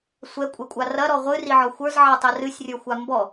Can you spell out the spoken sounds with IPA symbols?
sʷɛkʷʼɛkʷʼa rɐɾɔ ʁʷɨriʕɔ xʷə˞zʕatˤɛ rɨsʲrʲə˞xʷa mbɔ

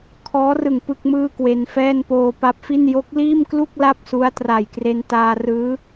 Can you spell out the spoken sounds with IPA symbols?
kʰɔː˦˥rɯ˨˩ŋ pɯ˥˩k̚mɯː˥˩kwe˧nfɛː˥˩n poː˧pa˦˥p̚fi˥˩n jo˦˥k̚liː˥˩mklu˥˩k̚ la˥˩p̚su˦˥a̯tra˨˩jkre˧n taː˧rɯː˦˥

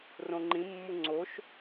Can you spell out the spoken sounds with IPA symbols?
rõŋ͡ǃĩmːu ŋ͡ǀoʃ

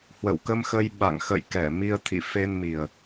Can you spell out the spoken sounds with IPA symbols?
hwə̰˧˨wkə˧mxə˧j ɓa̰˧˨ŋxə̰˧˨j kɛ˧˩mi˧ə̯ t̪ʰḭ˧˨fe˧nmi˨˩ə̯

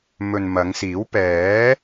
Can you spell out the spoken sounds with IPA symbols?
mɵ˨nmɐ˨˧ŋsiː˨˥w pɛː˨˥

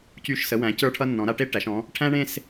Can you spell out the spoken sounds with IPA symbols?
cy˧˩ʃsə˩˧wæ̃˩˧ cə˞˧ʈʰʌ˧nːɔ̃˩˧ ɾa˧ʈe˥ ʈæ˩˧ʃ ɔ̃˩˧ | ʈʰæ̃˥ɳẽ˥˧s

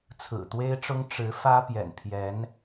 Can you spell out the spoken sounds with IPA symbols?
t͡sʰɹ̩˨˩t̪we˥ɪ̯ʈ͡ʂʊ˥ŋ ʈ͡ʂɻ̩˧˥ fä˥pjɛ̰˨˩npʰjɛ˧˥n

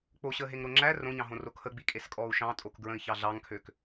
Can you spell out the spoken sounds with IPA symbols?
k͡poɕəːɦeŋɾo ŋ͡ǁæ rõɲɑ̃ɦõro kʰəɡ͡bikʼeskʼɔːu̯ ʃɑ̃tʼokɡɹə̃i̯çɑ ɮɑŋkʰøk

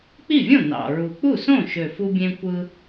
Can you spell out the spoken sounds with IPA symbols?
k͡pi˥˩vʲõ˥˩ nɑ̰˨˩ɹu˨˩ k͡pu˥˩sõ˥˩ʃø˨˩ fu˧bʲẽ˧kʷɯ˧

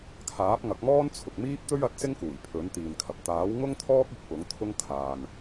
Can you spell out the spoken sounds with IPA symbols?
kʰaː˨˥p̚ŋɐ˨˥k̚mɔː˥n t͡sʰʊ˨k̚miː˥p̚t̪ɵ˥ɥ ɐ˨˥t̚sɪ˥ŋkuː˨˩j pʰɵ˨˥nt̪iː˨nkʰɐ˨p̚ t̪aː˨˥wŋʊ˥ŋt̪ʰɔː˥k̚ ʊ˧k̚ pʊ˨˥ŋ t̪ʰʊ˥ŋkʰaː˨n

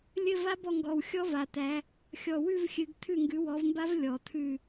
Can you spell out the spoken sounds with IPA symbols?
lʲɘ˦˨va˦˥bɔ˦˨ŋɡɔ˨˩w xʲɔ˦˥va˨˩tæ˨˦ | xʲɔ˨˩wʉ˦˨v xʲɨ˨˦ɡ tʰʉ˦˨ŋɡʉ˨˦wɔ˨˦vmba˦˥v lʲɔ˨˩tʰʉ˦˨

